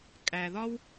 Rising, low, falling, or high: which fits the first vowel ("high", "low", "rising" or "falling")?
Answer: low